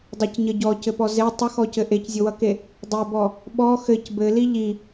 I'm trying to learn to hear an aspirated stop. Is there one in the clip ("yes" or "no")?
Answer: no